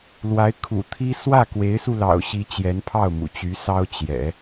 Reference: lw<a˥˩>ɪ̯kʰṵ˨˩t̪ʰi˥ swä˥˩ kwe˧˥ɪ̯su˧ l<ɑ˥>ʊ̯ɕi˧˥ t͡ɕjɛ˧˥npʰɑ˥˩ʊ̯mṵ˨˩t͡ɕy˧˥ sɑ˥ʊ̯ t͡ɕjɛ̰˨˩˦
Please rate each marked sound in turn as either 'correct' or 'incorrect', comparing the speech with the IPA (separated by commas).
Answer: incorrect, incorrect